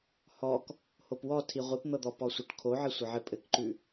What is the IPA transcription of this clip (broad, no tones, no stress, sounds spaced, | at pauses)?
h ɔ k | h o p w ɔ tʰ i ʁʷ i p n̪ ɤ d̪ ɔ p ɔ sʷ ɤ ʈ kʰ o ʕ ɘ sʷ ɘ ʕ ɘ pʼ ɘ k ǃ ʉ